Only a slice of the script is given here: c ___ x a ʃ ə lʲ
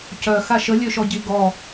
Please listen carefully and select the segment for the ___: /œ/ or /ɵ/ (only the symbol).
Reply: œ